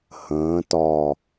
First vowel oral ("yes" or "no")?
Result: no